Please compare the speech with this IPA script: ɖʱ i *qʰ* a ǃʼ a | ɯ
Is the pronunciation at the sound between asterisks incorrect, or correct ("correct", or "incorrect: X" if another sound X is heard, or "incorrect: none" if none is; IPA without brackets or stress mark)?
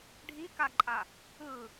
incorrect: k